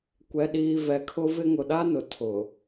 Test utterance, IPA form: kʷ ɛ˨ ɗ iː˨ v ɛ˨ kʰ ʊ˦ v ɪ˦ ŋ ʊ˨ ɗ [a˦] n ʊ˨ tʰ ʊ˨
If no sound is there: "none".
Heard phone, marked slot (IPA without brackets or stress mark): a˦